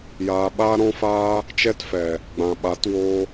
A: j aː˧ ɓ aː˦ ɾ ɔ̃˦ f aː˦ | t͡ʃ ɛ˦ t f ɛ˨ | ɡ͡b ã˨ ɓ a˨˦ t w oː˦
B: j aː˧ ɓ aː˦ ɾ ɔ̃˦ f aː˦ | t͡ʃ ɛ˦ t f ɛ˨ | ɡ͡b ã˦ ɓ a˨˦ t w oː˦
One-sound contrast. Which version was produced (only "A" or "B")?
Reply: A